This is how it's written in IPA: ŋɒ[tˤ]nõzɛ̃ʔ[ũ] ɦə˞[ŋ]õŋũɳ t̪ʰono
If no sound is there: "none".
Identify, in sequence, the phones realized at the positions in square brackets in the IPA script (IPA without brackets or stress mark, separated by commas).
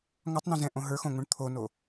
tˤ, õ, x